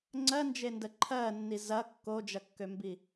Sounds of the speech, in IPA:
ŋ͡ǀɜnd͡ʒendə ǃʰɜnːi zɐ kːod͡ʒɐkːømbi

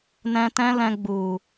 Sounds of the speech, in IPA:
nɛ̃˧tɛ̃˦lɛ̃˧ ɡ͡bu˨

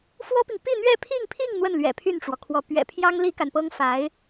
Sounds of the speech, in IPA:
fwɔ˥pi˨ŋ pi˥˧n̪ɥɛ˥˧pʰi˥˧ŋpʰi˥˧ŋ n̪wə˥˩nlɥɛ̰˨˩ pʰy˥˩nʈ͡ʂwɔ˩kʰwɔ˧˥ pɥɛ̰˨˩pʰjɑ˥ŋ li˥ka˨npɤ˥ŋ fa˧˥ɪ̯

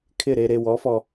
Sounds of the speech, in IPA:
kʰɪ˦˨ɾe˧ɾe˧ wɔ˨˦fɔ˧

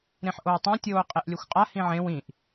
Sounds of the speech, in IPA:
ɾẽħʔowtˤã tʲoːqʼeʔlʲɵxʷqʼa hĩʕẽw ĩʔ

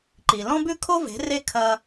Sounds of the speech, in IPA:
ǃi˨lɔ̃˦bʉ˦ kʰo˦ve̤˨˦ re˦ kʰɐ˦

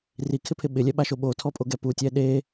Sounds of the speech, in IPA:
rikʰɪpʰɪ ɓɪlʲɛɓaʃo ɓotʰɔpʼoɡɛ putʲɛ ɗe

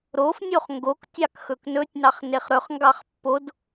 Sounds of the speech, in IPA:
ɾofnʲoχ ŋɡoktʲɑk xɵknɵtʲ nɑχneχɾɵχ ŋɡɑχpːod

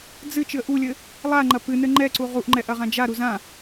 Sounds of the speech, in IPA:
d͡zɨ t͡ʃɨə̯ʔulʲɘ | lˠaŋ͡ǃɐ pɨnɘ ŋ͡ǃɛǀu ʁuʔŋ͡ǃɛ ʔɐʁãd͡ʒaɾu zã

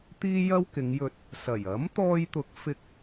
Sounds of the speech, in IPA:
t̪iː˥jɐ˥wkɪ˨˧ŋjɵ˧t̚ | sɐ˨˩j ɐ˨˥mt̪ɔː˧jt̪ʊ˨˥k̚ fɪ˧k̚

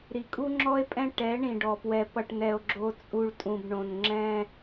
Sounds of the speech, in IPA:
ɾi˨kʼu˦ŋ͡ǁɔ˦e̯pʼɛ̃˦ ʈɛ˨˦ɳĩ˨ɖɔ˨pwɛ˨ pʌ˨ʈnɛ˨o̯ ɡ͡ǁo˦t͡sʼu˦ɭ tʼũ˨bɳõ˨n ŋ͡ǁɛ̃˦

